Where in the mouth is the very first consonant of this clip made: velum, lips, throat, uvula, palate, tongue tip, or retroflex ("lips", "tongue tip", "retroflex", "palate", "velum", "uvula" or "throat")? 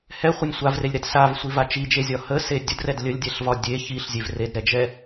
throat